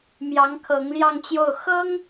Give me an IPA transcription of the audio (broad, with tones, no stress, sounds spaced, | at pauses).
m j ɑ˧˥ ŋ kʰ ɤ˧˥ ŋ l j ɑ˥˧ ŋ t͡ɕ j o˥˩ ʊ̯ x ɤ˥ ŋ